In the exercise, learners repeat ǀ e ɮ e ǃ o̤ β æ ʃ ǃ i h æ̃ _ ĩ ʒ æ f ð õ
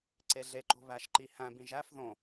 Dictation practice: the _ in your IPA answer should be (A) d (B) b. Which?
B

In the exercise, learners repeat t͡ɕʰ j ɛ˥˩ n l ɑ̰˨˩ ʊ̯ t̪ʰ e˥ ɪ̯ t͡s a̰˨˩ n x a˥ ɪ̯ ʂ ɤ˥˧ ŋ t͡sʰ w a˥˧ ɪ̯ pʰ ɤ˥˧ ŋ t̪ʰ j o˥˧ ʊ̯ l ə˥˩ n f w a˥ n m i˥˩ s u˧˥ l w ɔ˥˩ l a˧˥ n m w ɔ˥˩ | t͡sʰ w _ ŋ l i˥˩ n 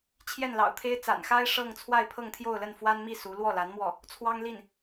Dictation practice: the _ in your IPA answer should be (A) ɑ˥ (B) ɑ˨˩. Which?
A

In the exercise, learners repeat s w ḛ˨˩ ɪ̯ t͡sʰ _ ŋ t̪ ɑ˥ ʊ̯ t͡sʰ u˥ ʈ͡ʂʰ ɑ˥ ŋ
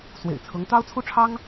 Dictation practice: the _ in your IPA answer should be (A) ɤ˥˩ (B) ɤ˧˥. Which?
B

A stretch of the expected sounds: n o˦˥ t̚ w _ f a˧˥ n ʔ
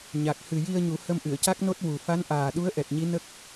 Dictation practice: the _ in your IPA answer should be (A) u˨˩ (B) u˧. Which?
A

